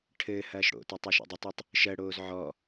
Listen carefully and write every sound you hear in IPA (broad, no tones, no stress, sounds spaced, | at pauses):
ʈʰ ɘː h ɐː ʃ ɽ o̰ t ɐ tˤ u ʃ o̰ dˤ ɘ tˤ o tˤ | ʃ ɜ ɽ oː z ʕ ɔ